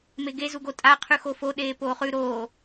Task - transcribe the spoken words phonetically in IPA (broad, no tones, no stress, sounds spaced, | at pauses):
m e ɡ e z u ɡ o tʼ a qʰ ʉ x o f o ɗ eː p oː χ ʉ ɾ oː